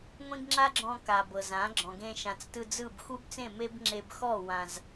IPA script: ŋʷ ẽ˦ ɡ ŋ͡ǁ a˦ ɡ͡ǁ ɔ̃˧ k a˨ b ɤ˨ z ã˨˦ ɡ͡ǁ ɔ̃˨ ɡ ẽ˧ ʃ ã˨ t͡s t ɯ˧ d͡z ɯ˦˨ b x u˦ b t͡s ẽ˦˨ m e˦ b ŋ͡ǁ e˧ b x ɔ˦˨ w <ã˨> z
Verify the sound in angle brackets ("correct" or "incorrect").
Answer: correct